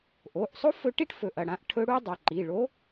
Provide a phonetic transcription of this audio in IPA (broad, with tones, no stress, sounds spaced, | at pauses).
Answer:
ʔ o˩˧˩ ʔ sˤ o˥ f ɵ˧˥ ʈ i˥ ʈ f ɵ˩˧˩ ʔ ɐ˩˧˩ ɽ ã˧˥ ʔ ʈʰ ɵ˧˥ ɽ u˥ dˤ ɐ˩˧˩ ǃ i˩˧˩ ɭ o˧˥